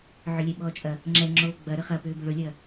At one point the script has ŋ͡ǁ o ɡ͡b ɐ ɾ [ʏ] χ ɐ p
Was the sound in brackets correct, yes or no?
yes